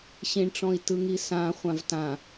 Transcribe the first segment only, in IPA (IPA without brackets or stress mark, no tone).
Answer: ɕ